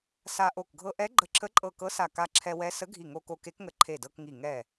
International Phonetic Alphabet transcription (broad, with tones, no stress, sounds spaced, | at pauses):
s a˧ ʔ o˧˩ k ɡʱ ɤ˧ ʔ ɛ˧˥ ɡ͡ǃ ə˧˩ ǁʰ ə˧˥ ǃʼ ɤ˧˩ k ɤ˧˥ s a˧˩ k a˧ ǁʰ ɛ˧ w ɛ˧˥ s ə˧˥ ɡʱ i˧˩ ŋ o˧ k o˧ k e˧˥ k ŋ ə˧ ǃʰ e˧˩ d ɤ˧ k ŋ i˧˩ ŋ ɛ˧˩